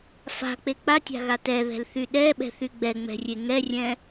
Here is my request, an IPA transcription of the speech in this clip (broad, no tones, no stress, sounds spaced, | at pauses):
f a̤ k͡p e k͡p a tʲ a̤ ɣ a t ɛ ð ɛ̤ l θ y ɗ ɛ ɓ ɛ̤ θ y ɡ͡b ɛ ŋ͡m ɛ̤ rʲ e ŋ ɛ rʲ ɛ̃